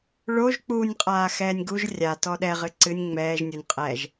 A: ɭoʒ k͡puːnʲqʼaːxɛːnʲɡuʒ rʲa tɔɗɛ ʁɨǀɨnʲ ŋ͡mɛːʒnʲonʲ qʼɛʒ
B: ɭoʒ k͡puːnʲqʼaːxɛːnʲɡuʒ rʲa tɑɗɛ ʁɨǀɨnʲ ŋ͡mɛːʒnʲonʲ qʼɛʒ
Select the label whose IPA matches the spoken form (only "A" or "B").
A